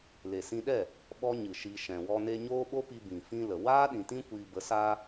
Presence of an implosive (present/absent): present